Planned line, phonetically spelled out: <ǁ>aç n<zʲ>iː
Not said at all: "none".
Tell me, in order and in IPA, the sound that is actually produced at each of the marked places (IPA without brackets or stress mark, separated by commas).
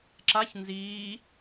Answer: ǁ, z